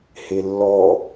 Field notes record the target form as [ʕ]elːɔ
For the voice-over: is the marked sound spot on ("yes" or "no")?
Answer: no